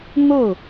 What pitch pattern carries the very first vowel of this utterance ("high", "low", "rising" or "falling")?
falling